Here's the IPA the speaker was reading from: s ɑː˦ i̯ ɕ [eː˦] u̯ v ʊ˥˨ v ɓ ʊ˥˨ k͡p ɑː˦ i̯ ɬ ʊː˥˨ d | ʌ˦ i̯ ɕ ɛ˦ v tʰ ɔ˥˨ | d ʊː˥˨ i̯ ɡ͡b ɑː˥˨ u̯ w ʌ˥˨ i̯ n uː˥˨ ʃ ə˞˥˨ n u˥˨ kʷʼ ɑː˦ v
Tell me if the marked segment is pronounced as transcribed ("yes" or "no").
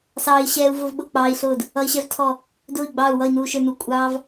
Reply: no